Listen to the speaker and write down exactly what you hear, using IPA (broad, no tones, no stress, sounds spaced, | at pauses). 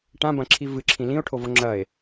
ʈ ã b ɐ̃ ǁʰ i v ɨ ǁʰ ĩ l ĩ o̯ ʈʰ o v o ŋ͡ǁ ɐ e̯